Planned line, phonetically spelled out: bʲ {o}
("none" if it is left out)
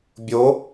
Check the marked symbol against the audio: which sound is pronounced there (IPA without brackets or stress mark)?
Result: o